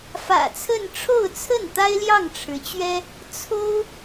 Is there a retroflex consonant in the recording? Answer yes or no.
yes